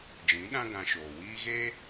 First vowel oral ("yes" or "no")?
no